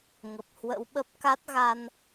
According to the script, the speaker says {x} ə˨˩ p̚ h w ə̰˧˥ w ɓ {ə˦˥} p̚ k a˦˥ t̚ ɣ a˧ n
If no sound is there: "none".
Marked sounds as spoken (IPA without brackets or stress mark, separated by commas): ŋ, ə˦˥